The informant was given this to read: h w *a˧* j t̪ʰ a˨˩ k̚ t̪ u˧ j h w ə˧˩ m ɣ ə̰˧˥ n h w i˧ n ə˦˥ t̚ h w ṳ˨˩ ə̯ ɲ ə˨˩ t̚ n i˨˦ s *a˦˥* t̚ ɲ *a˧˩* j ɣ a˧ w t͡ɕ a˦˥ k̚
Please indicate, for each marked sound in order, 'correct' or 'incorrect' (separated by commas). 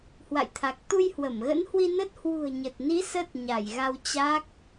incorrect, incorrect, correct